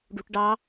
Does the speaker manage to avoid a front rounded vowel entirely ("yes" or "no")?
yes